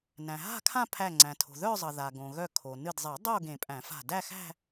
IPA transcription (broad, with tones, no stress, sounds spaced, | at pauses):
n æ̃˩ ɦ a̤˥˧ kʰ ã˥˧ pʰ æ˧˩ ŋ͡ǀ æ̃˩ tʰ o̤˩ ð œ˥˧ zˤ ʌ˩ ð a˩ ɡ õ˩ ɣ œ˧˩ kʰ o˩ n ɨ˧˩ d zˤ e˨˩˦ dˤ o˥˧ ɡ ẽ˨˩˦ pʼ æ̃˨˩˦ f a̤˧˩ d æ˥˧ x æ̤˥˧